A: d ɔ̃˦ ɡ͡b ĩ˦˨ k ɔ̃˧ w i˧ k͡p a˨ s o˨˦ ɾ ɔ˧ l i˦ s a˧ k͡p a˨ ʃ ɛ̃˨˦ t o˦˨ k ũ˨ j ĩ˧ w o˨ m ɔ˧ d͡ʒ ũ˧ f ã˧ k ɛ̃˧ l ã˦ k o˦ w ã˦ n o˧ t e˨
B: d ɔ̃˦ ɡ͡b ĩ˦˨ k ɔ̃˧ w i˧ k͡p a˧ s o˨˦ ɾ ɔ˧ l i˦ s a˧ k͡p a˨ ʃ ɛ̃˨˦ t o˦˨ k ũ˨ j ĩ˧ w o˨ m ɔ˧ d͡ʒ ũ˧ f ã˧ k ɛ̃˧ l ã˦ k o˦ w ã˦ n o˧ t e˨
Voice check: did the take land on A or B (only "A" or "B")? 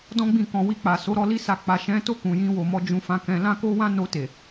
A